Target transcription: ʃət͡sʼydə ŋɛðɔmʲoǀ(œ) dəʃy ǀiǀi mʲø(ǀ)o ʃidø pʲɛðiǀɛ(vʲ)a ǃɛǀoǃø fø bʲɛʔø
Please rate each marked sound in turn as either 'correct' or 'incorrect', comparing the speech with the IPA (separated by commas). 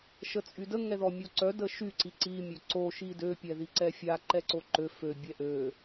correct, correct, incorrect